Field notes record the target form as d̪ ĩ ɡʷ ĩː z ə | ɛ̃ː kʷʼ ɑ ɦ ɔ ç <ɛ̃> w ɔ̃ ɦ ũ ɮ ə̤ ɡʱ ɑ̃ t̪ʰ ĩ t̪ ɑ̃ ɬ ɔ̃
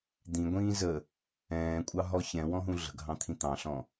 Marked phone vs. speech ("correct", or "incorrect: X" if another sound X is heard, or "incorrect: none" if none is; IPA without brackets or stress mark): correct